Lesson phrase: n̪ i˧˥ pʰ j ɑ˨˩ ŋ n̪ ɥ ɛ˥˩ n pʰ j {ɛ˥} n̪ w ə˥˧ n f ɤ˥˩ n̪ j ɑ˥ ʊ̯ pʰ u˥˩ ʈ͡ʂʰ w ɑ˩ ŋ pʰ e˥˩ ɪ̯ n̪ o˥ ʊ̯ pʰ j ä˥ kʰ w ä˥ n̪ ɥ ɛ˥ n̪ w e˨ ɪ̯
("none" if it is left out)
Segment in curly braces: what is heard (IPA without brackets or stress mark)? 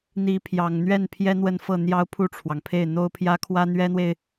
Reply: ɛ˥